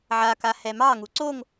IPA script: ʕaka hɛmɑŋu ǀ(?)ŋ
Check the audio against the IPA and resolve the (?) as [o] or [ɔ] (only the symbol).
o